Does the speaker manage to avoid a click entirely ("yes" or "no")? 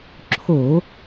no